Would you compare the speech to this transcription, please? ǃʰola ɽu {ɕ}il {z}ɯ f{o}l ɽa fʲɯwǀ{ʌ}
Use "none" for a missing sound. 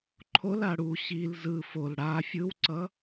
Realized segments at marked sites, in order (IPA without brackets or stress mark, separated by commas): ɕ, z, o, ʌ